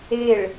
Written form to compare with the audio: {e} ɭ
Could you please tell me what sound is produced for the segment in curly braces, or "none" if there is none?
e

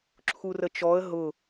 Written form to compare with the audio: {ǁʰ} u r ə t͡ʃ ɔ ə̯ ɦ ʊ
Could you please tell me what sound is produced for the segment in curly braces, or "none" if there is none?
ǁʰ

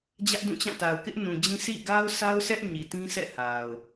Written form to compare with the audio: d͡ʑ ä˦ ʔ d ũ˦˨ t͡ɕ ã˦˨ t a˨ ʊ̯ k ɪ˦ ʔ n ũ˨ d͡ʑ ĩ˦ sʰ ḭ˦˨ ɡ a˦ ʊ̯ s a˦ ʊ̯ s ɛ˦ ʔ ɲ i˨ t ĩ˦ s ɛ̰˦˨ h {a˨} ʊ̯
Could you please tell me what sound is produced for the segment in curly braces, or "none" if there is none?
a˨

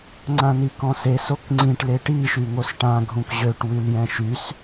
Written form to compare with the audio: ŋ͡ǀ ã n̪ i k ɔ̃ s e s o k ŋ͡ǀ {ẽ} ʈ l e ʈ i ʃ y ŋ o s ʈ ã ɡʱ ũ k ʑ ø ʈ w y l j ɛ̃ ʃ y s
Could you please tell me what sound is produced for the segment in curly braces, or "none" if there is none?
ĩ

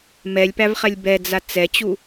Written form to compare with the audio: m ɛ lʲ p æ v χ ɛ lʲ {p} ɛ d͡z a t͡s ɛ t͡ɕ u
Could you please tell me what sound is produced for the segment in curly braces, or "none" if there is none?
b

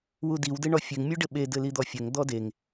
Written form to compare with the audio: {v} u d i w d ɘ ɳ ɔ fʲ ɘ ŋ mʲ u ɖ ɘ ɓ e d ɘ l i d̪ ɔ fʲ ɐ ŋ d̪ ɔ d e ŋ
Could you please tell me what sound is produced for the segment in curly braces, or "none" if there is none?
w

